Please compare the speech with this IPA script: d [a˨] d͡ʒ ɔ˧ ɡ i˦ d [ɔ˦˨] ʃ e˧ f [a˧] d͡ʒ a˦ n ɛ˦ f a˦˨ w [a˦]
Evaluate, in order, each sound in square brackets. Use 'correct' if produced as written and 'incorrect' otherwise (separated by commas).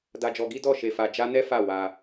incorrect, correct, correct, incorrect